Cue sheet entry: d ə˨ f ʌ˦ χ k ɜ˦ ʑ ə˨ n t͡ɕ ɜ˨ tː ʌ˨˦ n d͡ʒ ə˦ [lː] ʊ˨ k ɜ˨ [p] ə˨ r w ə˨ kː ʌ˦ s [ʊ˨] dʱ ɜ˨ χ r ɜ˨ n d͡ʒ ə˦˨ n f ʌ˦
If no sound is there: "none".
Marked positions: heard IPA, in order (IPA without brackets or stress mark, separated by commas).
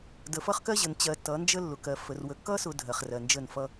lː, f, ʊ˨